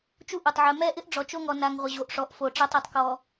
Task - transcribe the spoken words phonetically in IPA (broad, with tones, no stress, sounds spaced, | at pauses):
t͡ʃ u˦ ʔ o˨ tˤ ʕ ɛ˨ m ɛ˦˨ ʔ ɪ˦ ʔ ɖ͡ʐ ɔ˨ t͡ʃ o˦ ŋ ɔ˨ n a˨ ŋ ʁʷ ɪ˨ ʑ o˨ ʔ ʂ ɔ˨ ʔ f o˨ ʈ͡ʂ a˦ tˤ ɔ˨ tˤ k ɔ˨